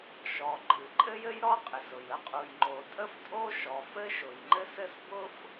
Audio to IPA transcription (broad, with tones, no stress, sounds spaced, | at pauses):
ʃ ɔ˩ ǃʼ ɨ˩ ǃʼ ɘ˥ j ɘ˥ j ɾ ɔ˥ qʼ ɪ˩ s ʊ˩ j ə˥ qʼ u˩ j ŋ͡ǃ o˩ tʼ ə˥ f tʼ o˥ ʃ ɔ˩ f ɘ˥ ʃ ʊ˩ j ŋ͡ǃ ɘ˥ s ɘ˥ s b ʊ˥ f